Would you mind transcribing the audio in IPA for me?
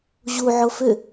ʑ u ʕ o f ʏ

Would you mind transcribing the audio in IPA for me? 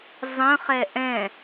zˤ ə̃ χ ɛ ʔ ɛ̃

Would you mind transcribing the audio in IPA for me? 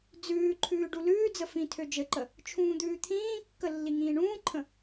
d͡z ʉː ǃʰ ʉː ɖ u l ʉː d͡z ə f ĩ tʰ ø d͡ʒ ɘ ǃ ə | t͡ʃʰ ũː d̪ ʉː t̪ʰ ĩː kː ə lː i ŋ ĩː ɳ ũː ǃʰ ə̃

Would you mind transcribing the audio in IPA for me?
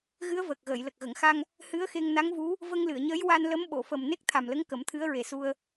ɣ ɨ˧˥ ə̯ v əː˨˩ k̚ ɣ əː˨˩˨ j l ə˨˩ k̚ ɣ ə˨˩˨ ŋ x a˧ ŋ | h ɨ˧˥ ə̯ x e˧ ŋ n a˧˥ ŋ v u˧˥ | v ə˧ ŋ l ɨ˨˩˨ ə̯ ɲ əː˧˥ j w a˧ n l ə˧˥ m ɓ o˨˩˨ f ə˨˩ m n e˦˥ k̚ t̪ʰ a˨˩ m l ə˧˥ ŋ k ə˨˩˦ m t̪ʰ ɨ˧˥ ə̯ ɹ e˨˩ s u˧ ə̯

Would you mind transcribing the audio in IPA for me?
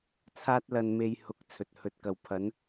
t͡sʰ aː˥ t̚ l ɐ˧ n m e˧ j h ʊ˨˥ k̚ t͡sʰ ɵ˨ t̚ h ɵ˨˥ t̚ k ɐ˨ w pʰ ɐ˨˥ n

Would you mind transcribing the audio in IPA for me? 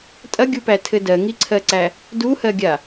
tʼ ɐ ɡʲ u p æ tʰ ɘ d ɜ ŋ i ǀʰ ɜ ǀ æ | d u h ɜ ɡʲ a

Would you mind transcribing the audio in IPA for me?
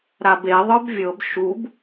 ɾ a b e ðˤ ə˞ b vʲ ɤ b ʃ u b

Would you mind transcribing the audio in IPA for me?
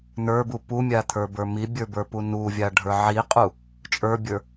n ə˞ b u p u mʲ a t̪ʰ ə˞ b ə˞ m i bʲ ə˞ b ə˞ p u n u vʲ a ɖʱ ə˞ ʕ i qʼ u | t͡ʃʼ ə˞ bʲ ə˞

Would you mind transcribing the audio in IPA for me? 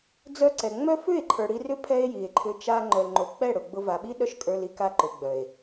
d͡z œ˧ ǀ ɛ˨ ŋ͡m œ˦ f ʏ˦˨ e̯ ǃʰ ə˞˨ ɽ i˧ r ʏ˦ pʰ ɛ˦ e̯ j i˨ e̯ ǃʰ ʏ˧ t͡ʃ a˧ ŋ͡ǃ œ˨ l ŋ͡ǃ o˨ k͡p ɛ˦˨ ɽ ʊ˨ ɡ͡b ʊ˧ v a˨ ɓ i˦ ɗ œ˦ ʃ kʼ ə˞˧ l i˧ k a˧ ǃ ʊ˨ ɡ͡b œ˨ e̯

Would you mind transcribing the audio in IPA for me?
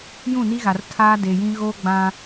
j ũ˦˨ n i˦ ɣ a˨ r tʰ aː˦ d e˨ j ĩ˦ ɣ o˦ ɡ͡b ã˦

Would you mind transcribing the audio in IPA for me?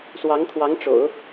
s w ɑ˧˥ ŋ t̪ʰ w ɑ˧˥ ŋ ʈ͡ʂ o̰˨˩˦ ʊ̯

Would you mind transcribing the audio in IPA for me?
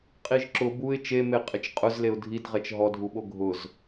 qʼ i ʒ ǁ ʊ b u ɪ̯ t͡ʃ e m e qʼ ɪ t͡ʃ qʼ ʊ z l e ʊ̯ dʱ i d ʁ ɛ t͡ʃ ɦ ɔ dʱ u ɓ o ɡʱ ʊ z

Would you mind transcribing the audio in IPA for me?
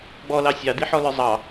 ɡ͡b ɔ l ɑ sʲ ɑ d̪ i ħ ɔ l ə˞ zˤ ɑ

